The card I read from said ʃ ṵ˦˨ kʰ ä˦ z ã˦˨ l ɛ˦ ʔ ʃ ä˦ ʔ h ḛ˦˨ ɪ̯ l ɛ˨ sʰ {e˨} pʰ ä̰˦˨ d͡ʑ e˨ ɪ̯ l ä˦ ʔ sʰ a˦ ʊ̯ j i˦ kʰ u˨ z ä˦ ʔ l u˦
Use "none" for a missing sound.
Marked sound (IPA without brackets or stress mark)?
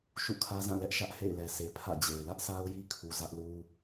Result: e˨